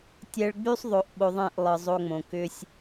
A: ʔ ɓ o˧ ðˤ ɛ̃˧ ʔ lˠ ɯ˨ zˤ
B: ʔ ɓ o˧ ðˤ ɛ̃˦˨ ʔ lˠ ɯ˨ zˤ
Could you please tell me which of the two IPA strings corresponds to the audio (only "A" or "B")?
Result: B